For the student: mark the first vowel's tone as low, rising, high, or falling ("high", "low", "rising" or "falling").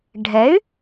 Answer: rising